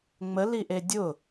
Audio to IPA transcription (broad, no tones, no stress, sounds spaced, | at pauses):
ŋ͡m ə l i ʔ e dʲ ʊ